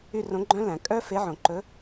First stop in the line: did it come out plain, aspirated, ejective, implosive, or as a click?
click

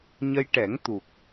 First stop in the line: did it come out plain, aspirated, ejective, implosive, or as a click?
plain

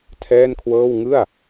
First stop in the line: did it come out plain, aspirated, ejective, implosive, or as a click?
aspirated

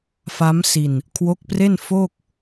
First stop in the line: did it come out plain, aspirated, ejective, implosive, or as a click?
aspirated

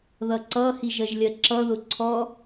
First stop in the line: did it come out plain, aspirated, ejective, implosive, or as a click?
click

